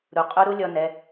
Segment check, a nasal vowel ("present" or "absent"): absent